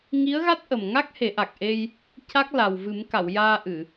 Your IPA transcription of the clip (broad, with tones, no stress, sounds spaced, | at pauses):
ŋ i˧˥ ə̯ ɣ a˦˥ t̚ ʔ ə˨˩ m ŋ a˦˥ k̚ h e˨˩˦ ʔ a˨˩ k̚ ʔ e˧ j | c a˦˥ k̚ l a˨˩ w v ɨ˨˩˦ m k a˨˩˨ w j aː˧ ʔ ɨ˨˩˨